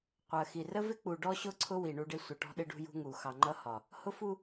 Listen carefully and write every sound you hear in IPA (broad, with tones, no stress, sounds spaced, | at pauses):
qʷ ɜ˨ x i˨ r ə˦ v ɪ˦ k͡p u˨ ɖ ɔ˦ ɕ ʊ˦˨ ǀʰ ʊ˦ w i˨ ɳ u˦ ɖ ɪ˦ sʷ ə˨ ʈ ɔ̤˦ ɗ ɪ˦ ɖ ṳ˦ j ṳ˦ ŋ u˨ x ɑ˨ ŋ͡ǃ ʌ˦ h ɒ˨ | h ʊ˦ f u˦